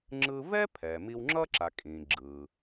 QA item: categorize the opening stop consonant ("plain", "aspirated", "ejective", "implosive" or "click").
click